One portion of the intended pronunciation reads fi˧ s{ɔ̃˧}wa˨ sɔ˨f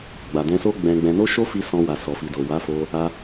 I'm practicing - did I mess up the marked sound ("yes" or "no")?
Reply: no